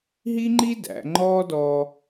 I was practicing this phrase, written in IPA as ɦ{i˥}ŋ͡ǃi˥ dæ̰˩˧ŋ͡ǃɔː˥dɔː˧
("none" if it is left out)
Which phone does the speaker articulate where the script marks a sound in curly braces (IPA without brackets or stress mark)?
i˥